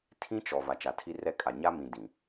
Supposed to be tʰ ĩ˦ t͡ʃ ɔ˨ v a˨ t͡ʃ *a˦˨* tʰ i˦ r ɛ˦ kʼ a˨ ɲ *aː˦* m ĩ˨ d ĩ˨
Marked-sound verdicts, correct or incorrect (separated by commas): incorrect, incorrect